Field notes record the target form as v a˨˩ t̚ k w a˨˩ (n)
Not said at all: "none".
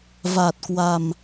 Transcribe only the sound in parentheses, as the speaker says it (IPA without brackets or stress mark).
m